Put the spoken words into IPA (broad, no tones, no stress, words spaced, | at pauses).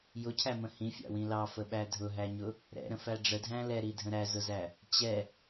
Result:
jʊcʰæmə̃ hĩfʲɑ̰wĩ lɑfəɓæ dʱʊɦæɲʊ | ɾɛ̰ɾə̃fæ ɖ͡ʐədʱæ̃ lɛɾidʱə̃ ɾæzʊzæ | t͡ɕɛ